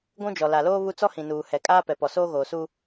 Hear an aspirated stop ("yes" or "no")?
no